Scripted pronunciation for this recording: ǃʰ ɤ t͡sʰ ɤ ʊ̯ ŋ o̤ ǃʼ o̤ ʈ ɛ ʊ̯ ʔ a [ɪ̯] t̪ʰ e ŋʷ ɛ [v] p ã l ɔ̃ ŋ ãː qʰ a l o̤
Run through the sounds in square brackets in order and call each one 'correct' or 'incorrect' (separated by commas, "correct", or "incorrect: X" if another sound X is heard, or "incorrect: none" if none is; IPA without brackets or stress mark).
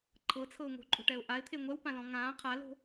correct, incorrect: w